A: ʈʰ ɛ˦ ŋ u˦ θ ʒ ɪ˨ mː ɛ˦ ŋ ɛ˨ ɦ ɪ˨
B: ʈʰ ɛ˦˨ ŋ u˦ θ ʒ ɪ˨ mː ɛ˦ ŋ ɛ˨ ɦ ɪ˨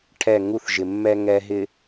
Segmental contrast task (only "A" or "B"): B